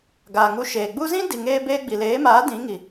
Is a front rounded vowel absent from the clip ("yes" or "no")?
yes